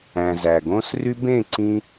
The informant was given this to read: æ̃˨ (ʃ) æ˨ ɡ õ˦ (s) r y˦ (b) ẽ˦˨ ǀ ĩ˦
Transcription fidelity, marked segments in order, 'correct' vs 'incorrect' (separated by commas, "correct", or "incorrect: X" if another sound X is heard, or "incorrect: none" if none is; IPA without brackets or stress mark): incorrect: z, correct, correct